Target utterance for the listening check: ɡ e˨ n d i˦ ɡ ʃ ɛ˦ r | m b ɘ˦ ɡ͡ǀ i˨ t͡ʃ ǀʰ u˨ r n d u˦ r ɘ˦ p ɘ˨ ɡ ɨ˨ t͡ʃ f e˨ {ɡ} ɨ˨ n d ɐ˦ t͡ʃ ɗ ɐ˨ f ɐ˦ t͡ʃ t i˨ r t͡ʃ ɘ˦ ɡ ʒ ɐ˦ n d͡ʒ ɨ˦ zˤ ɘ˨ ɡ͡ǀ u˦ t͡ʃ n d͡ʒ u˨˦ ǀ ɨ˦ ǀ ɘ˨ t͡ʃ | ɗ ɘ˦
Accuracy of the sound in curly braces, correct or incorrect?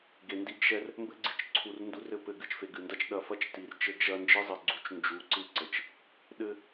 correct